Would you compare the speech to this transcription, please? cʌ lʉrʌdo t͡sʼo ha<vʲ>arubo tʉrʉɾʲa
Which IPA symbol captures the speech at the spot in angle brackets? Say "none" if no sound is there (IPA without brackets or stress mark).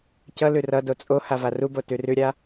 v